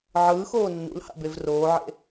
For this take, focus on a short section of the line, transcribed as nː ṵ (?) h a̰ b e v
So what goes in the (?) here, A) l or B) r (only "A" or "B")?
A